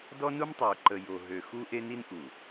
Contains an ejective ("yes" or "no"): no